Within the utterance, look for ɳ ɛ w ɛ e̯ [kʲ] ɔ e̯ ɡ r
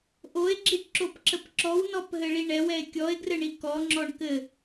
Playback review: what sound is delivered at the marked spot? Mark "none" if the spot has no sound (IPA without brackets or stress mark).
kʲ